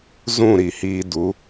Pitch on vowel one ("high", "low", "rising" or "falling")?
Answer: falling